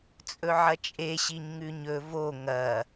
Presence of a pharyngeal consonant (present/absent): present